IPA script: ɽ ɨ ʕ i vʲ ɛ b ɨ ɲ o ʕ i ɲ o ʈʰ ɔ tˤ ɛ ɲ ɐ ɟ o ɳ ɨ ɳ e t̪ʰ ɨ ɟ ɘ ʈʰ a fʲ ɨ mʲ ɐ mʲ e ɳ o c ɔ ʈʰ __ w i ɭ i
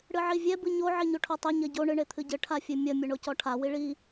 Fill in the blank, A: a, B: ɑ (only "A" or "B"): A